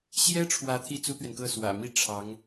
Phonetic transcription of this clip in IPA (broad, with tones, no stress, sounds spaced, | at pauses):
ɕ j ɛ˥ ʈ͡ʂʰ w ä˧˥ t̪ʰ i˥ t͡s u˥ t̪ ɥ ɛ˨ n k ɤ˥˩ s w ä̰˨˩ m i˥˩ ʈ͡ʂʰ ɑ˧˥ ŋ